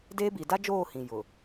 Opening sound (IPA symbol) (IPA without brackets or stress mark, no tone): d